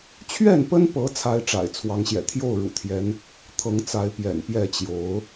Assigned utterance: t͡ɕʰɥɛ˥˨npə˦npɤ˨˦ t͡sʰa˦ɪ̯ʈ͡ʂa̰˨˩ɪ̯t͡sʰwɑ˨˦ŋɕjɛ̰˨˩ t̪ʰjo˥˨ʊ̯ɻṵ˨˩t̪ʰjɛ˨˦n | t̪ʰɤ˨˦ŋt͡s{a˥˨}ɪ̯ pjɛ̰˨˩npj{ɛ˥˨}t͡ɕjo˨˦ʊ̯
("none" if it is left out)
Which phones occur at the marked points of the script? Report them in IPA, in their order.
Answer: a˨˦, ɛ˥˨

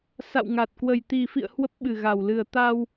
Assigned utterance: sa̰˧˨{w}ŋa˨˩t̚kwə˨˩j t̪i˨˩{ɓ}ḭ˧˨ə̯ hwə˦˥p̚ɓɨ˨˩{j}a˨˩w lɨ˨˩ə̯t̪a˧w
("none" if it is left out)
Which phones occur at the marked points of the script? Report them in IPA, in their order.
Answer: w, f, ɣ

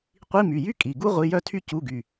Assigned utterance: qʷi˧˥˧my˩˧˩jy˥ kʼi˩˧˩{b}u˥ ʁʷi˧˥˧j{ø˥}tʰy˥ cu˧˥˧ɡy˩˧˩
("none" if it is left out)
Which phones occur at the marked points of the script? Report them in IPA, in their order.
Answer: ɡ, œ˥

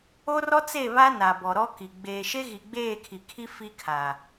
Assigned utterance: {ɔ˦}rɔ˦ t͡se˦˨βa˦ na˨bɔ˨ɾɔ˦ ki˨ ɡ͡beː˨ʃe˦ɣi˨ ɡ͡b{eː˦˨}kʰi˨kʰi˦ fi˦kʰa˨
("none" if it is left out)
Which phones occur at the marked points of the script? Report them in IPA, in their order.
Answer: o˦, eː˦˨

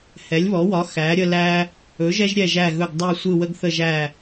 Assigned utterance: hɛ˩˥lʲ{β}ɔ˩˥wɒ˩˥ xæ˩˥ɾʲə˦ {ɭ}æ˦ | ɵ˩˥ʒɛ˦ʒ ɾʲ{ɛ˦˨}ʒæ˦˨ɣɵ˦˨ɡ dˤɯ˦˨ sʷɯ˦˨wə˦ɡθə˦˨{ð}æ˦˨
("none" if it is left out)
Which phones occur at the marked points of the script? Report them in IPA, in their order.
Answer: β, l, ɛ˦˨, ʒ

